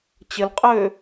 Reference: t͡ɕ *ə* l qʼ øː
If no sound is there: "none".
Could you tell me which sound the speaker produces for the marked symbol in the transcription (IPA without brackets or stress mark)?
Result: ə